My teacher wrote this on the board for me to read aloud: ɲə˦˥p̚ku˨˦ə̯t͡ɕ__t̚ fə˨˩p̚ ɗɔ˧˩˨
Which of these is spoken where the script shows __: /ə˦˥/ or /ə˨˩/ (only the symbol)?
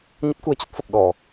ə˦˥